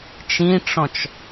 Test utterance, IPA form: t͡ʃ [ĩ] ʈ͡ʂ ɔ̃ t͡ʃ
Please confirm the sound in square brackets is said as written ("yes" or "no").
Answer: yes